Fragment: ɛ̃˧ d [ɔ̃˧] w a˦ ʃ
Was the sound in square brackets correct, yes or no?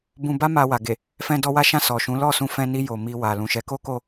no